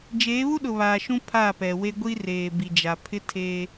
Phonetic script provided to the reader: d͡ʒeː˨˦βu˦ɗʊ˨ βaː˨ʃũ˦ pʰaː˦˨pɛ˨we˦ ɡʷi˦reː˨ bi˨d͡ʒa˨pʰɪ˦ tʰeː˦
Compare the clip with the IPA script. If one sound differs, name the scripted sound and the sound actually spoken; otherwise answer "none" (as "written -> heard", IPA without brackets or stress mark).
none